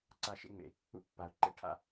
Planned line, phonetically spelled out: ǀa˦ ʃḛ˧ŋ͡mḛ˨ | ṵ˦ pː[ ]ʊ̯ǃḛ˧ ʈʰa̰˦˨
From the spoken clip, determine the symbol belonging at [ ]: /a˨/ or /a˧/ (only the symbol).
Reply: a˨